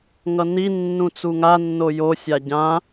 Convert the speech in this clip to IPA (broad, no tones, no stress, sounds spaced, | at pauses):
ŋ ʌ n i nː ũ t͡s u ŋ a nː o j o sʲ a ɟ ã